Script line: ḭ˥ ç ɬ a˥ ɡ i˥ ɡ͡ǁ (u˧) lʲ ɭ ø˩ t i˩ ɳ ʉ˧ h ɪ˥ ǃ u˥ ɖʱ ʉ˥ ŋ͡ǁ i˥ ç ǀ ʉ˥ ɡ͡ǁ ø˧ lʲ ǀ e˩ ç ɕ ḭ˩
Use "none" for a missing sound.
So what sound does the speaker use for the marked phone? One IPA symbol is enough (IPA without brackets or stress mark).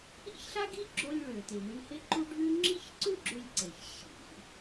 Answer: o˧